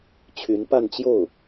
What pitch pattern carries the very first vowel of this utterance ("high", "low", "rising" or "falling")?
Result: rising